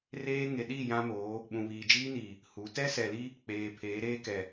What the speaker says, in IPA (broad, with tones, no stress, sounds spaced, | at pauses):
r eː˦ ŋ e˨ ɗ i˦˨ j ã˦ m oː˨˦ | ɓ ũ˨ β iː˨ d͡ʒ iː˦ n iː˨ | h u˨˦ t ɛ˦ s ɛ˨ l i˦ | k͡p eː˨ pʰ eː˨˦ ɾ eː˦ k ɛ˨